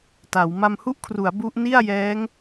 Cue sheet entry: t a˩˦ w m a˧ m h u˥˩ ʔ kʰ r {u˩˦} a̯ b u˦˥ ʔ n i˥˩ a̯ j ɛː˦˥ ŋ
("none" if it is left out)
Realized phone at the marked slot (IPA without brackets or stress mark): u˩˦